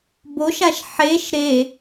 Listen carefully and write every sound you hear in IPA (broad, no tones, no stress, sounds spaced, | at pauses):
b o ʃ a ʃ ħ e ʃ ɾ e